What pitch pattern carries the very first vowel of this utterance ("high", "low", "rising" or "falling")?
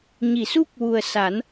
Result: low